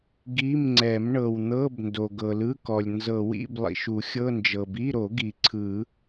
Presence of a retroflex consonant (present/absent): present